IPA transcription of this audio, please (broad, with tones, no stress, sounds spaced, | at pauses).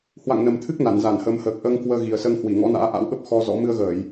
h w a̰˧˨ ŋ n ə˨˩ m t̪ʰ ɨ˦˥ k̚ n a˧˩ n z a˧˩ n h əː˨˦ m h əː˨˩ k̚ ʔ əː˧ ŋ k w əː˧ ɣ i˨˩ ə̯ s əː˧ ŋ h w i˧˩ ŋ ɔ̰˧˥ n a̰ː˧˥ ʔ a̰˧˥ w ɓ ə˦˥ p̚ x ɔ˧ z ɔ̰˧˥ m ɨ˧ ə̯ ɣ əː˧˩˨ j